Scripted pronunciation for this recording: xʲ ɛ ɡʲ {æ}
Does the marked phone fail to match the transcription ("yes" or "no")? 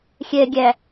no